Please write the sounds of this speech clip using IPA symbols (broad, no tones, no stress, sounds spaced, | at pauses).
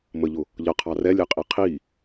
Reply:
m ə ʎ ʊ | ʎ ʌ qʰ ɑ r ɛ lʲ ɛ qʼ i qʰ i